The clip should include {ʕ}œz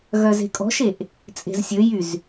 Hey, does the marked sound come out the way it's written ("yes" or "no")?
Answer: no